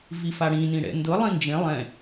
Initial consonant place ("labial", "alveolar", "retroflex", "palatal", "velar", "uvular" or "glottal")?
labial